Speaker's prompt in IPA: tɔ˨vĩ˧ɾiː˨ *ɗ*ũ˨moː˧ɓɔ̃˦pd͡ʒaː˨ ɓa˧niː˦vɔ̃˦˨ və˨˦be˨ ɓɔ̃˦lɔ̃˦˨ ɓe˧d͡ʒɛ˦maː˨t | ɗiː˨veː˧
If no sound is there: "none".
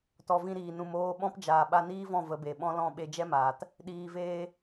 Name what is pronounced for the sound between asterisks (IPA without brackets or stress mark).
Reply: n